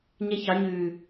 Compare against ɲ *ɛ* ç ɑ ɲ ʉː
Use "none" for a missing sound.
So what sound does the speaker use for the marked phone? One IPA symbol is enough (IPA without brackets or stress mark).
ɛ